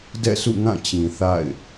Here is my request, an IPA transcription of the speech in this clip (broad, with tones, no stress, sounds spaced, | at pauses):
d ɛ̰˦˨ s ṵ˦˨ ŋ ã˦˨ t͡ɕ ĩ˨ θ a̰˦˨ ɪ̯